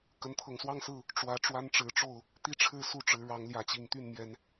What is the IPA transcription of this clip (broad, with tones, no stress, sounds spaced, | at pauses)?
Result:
k ə˨˦ n t̪ʰ ɤ˨˩ ŋ s w ɑ˥˨ ŋ s ɹ̩˥˨ | ʈ͡ʂ w ä˨˦ ʈ͡ʂ w a˦ n ʈ͡ʂ ɻ̩˨˦ ʈ͡ʂ o˥˨ ʊ̯ | t̪ i˦ ʈ͡ʂʰ ɻ̩˥˨ s u˥˨ ʈ͡ʂ ɻ̩˨˦ ɻ ɑ˨˦ ŋ l j ä˨˦ t͡ɕ i˨˩ ŋ t̪ y˥˨ n m j ɛ˨˦ n